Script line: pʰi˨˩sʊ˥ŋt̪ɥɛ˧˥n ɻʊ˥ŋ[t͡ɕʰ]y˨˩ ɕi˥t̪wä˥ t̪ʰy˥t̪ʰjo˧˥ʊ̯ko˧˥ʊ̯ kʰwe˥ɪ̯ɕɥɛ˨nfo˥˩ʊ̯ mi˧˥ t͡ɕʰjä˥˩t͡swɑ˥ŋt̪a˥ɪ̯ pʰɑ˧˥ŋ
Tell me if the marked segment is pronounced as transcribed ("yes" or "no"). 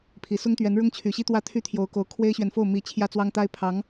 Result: yes